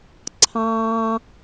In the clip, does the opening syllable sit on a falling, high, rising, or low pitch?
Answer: high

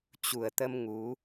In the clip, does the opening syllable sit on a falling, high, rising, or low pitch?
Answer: low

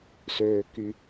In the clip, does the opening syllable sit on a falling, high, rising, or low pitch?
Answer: low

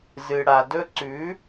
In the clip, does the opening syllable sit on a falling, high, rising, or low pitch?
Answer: low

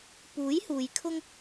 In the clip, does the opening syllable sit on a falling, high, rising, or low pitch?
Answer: rising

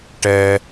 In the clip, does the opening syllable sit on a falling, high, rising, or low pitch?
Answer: high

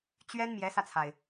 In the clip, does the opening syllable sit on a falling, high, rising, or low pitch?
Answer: high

